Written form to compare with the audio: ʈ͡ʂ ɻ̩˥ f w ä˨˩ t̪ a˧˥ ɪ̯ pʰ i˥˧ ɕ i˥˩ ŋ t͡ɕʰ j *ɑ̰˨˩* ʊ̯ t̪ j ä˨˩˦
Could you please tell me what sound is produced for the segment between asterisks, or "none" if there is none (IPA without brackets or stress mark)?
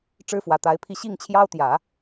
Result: ɑ˥